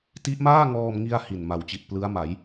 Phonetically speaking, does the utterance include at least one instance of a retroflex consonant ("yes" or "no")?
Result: no